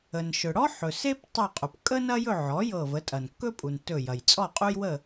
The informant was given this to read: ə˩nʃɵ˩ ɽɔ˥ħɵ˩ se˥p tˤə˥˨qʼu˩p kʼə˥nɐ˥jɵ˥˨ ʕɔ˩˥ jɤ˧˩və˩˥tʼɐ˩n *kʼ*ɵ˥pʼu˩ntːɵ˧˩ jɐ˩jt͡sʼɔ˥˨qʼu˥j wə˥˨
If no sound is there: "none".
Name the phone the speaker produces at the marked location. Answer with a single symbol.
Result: kː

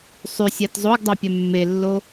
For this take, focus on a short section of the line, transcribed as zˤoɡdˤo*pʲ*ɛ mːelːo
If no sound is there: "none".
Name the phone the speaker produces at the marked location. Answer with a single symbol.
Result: pʲ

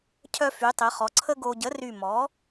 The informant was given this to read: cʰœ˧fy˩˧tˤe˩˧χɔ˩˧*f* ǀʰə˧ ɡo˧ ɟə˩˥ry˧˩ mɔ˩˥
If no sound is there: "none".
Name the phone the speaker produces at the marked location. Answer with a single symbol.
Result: none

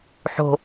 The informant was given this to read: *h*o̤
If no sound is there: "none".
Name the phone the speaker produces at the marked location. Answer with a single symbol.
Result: ħ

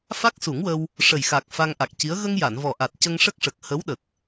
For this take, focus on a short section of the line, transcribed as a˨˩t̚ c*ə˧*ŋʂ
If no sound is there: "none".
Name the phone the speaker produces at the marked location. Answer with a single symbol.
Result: ə˧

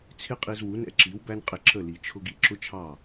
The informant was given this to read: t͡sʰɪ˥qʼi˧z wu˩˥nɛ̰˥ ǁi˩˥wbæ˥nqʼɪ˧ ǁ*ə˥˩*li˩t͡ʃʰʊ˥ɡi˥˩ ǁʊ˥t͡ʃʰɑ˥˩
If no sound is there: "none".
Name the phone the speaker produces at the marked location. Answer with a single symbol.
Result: ə˥˩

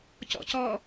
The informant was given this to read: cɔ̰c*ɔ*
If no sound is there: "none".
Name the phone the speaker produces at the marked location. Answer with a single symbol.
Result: ɔ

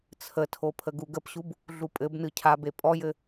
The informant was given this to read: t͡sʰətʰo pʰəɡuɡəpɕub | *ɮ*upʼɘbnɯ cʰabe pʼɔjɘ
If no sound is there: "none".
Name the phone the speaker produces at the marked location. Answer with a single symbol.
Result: ɮ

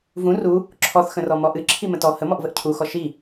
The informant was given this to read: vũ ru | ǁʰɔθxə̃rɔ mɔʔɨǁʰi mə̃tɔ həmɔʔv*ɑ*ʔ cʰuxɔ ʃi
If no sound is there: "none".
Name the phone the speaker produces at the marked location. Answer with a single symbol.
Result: ə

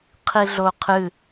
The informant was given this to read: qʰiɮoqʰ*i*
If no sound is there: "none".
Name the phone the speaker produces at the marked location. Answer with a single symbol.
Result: ɨ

